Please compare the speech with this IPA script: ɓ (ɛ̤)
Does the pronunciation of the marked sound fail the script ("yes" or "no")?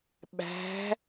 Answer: yes